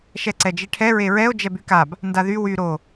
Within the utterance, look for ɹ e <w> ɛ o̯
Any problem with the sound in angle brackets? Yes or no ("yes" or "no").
yes